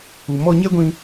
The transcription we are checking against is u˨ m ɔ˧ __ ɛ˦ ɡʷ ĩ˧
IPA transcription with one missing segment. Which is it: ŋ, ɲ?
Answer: ɲ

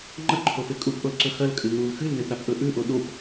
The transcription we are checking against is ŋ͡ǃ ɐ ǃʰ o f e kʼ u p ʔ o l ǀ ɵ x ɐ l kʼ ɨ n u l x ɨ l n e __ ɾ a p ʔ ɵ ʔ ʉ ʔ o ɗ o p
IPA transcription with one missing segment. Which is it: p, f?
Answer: p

